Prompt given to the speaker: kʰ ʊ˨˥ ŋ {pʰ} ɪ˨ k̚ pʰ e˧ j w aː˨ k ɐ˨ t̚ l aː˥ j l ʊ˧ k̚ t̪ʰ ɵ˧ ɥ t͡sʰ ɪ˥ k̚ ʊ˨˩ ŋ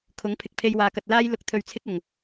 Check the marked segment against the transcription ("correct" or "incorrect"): correct